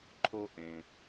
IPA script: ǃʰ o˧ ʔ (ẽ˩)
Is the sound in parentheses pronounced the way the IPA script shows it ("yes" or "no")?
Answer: yes